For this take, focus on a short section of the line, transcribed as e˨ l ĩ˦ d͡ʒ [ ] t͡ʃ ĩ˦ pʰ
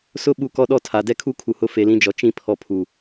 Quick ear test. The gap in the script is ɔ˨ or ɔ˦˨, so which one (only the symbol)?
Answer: ɔ˨